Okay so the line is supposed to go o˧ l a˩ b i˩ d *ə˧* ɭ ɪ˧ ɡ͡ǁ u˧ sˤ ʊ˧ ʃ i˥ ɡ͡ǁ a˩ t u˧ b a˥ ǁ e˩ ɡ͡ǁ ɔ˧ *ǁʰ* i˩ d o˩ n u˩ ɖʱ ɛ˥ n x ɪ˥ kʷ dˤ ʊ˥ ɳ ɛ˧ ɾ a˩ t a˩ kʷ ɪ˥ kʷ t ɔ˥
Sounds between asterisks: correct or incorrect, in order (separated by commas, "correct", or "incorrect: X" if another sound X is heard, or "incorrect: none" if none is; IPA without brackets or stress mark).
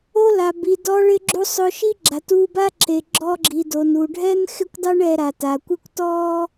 incorrect: ɔ˧, incorrect: ɡ͡ǁ